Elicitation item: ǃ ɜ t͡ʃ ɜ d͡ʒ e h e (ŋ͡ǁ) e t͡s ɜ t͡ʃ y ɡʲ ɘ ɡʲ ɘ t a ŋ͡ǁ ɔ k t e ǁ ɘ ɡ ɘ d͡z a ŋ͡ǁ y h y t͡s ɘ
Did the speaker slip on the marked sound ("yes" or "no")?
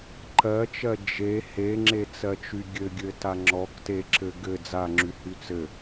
no